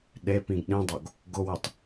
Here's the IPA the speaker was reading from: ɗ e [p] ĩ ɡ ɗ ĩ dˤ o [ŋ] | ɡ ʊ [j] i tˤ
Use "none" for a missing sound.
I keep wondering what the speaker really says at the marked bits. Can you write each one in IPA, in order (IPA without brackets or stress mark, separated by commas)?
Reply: p, ɡ, w